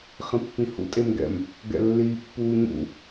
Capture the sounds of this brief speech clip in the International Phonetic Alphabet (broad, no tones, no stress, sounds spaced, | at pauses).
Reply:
χ ĩ pː ĩ h ṵ tʼ e m ɡ ɛ̰ m | ɡ ɛ̰ lː iː pː uː ɲ ṵ